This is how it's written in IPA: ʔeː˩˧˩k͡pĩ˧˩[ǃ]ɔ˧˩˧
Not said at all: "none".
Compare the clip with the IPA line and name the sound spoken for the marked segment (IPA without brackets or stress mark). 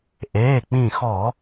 x